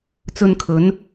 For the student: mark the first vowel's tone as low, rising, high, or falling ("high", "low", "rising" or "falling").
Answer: low